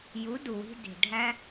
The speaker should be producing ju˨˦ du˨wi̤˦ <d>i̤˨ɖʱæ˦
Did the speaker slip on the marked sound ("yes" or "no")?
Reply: no